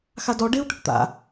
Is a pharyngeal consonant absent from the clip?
yes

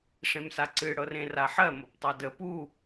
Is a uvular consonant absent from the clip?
yes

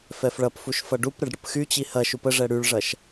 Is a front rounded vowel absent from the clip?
no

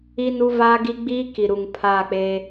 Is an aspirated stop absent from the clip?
no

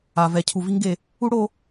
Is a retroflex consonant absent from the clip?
no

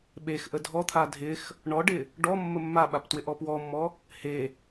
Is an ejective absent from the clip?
yes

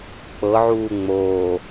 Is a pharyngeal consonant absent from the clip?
no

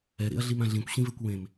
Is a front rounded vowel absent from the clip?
yes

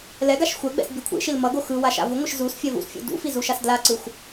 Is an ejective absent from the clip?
yes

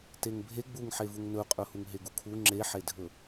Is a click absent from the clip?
no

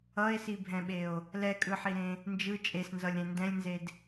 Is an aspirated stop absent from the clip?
yes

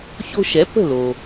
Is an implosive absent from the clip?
yes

